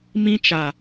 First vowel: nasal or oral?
nasal